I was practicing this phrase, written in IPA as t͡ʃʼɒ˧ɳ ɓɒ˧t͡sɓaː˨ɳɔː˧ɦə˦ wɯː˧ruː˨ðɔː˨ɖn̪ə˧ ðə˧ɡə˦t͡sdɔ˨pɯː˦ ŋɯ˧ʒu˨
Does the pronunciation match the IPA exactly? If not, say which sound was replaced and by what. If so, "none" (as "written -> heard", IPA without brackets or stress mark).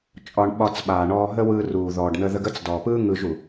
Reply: none